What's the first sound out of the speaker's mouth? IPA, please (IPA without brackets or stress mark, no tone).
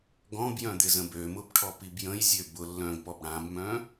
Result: ɡ